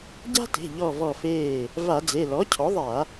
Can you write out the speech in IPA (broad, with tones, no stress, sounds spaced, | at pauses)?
ɟ a̤˦ t e̤˩˧˩ ʎ ɔ˧˩ v ɔ˧˩ f eː˧˩ | v a˧˩˧ d͡z e˩˧˩ l ɔ˩˥ cʰ ɔ˩˥ ðˤ a˧˩˧